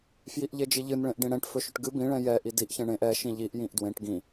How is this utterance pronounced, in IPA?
fjiʔʎed͡ʒiʎɨn ɭẽʔɖĩɽɛ̃ʈ fɵʃɵʈɡɨ bĩ ɭɛ̃jɛ ʔidiʔ çɛ̃ɳẽʔ ɛ ʃĩʎiʔ jĩʔdwẽʈ ɡĩ

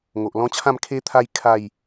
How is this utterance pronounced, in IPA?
ŋo˨ʔlɔ̃˦t͡ɕʰã˥˧m kʰe˦t̪ʰa˦j kʰa˥˧j

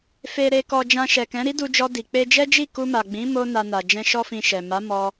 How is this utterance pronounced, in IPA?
fe˨ɾe˨kɔ˨ d͡ʒã˧ʃɛ˨kɛ̃˨˦ ɾi˦du˧d͡ʒɔ˧ di˨ k͡pe˧d͡ʒɛ˦d͡ʒi˦˨ ku˧ma˨ɡ͡bĩ˨˦ mo˦na˧na˨ d͡ʒɛ̃˧ʃɔ˦fĩ˧ʃɛ˨ ma˨˦ mɔ˦

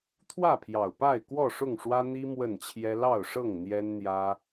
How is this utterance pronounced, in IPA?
t̪ʰwä˥˨pʰjɑ˨˩ʊ̯ pa˥˨ɪ̯ kwɔ˥˨ʂʊ˥˨ŋʂwä˦ n̪i˦ mwə˥˨nt͡ɕʰjɛ˦ lɑ˥˨ʊ̯ʂɤ˥˨ŋ n̪jɛ˦nn̪jä˦

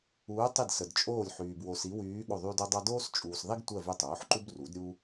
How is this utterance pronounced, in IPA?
uː˧˥ tˤi˦˨dsə˨dt͡ʃʼoː˦˨lʲ ħyː˨b wo˨s i˧˥wyː˧˥ ɠo˦˨ðˤyː˥d o˥dˤɑ˥ doː˥st͡ʃʼuː˨sðˤi˥ɡtʷɜ˦˨ vy˦˨tˤoː˩˥ħǃu˥b ru˩˥dɾʲu˥

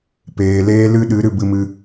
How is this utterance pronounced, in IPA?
peː˨leː˦ lɨ˦ɗɨ˨˦ ɾɨ˨bɨ˧mɨ˧

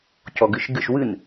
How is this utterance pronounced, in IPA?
cɔɡɨʃɡɨʃ wɨn

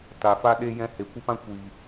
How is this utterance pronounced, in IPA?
ta˨fa˦ ɗe˦ jɛ̃˧ he˨kʷə˦pã˦ kʷi˨

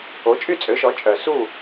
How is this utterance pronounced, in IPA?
o˩˥t͡ʃʼy˥˩t͡sʼø˩˥ʃɔ˩˥ t͡ʃʼœ˩su˥˩

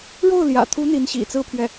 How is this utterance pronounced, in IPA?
ɻo˥˩ʊ̯ljä̰˨˩t̪ʰu˧˥ n̪i˧˥nɕḭ˨˩t͡sɹ̩˥˧pʰɥɛ˥˩

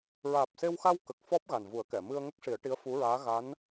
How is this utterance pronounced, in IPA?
ɹaː˨˩p̚se˧wxa˧w kə˨˩k̚fɔ˦˥p̚ ɣa˨˩nvu˨˩˦ə̯kɛ˨˩˨ mɨ˧ə̯ŋə˦˥k̚ ʂi˨˩˦ə̯ʈi˧˥ə̯fu˧˥ɹaː˧˥ ɣa˧˥n

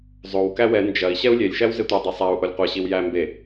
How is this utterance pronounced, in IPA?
zˤow kæwɛ nd͡ʒɐi̯ ɕɛu̯lʲelʲ ʃæwzetʷi dˤɐsˤæu̯ ʔolʲqʷɐ ɕiwjæ mbe

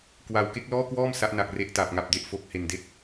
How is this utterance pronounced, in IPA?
kwa˧w ke˦˥k̚ lɔː˥˩kwɔː˥˩m sa˦˥ʔna˨˩k̚ re˦˥ʔta˨˩p̚ŋa˨˩p̚de˥˩ʔ fo˨˩k̚he˨˩nde˥˩k̚

